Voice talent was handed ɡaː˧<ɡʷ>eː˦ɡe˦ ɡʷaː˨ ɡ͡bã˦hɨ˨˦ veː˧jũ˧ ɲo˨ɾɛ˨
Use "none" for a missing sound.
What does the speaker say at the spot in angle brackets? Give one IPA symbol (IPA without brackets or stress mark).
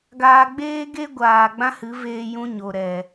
ɡ͡b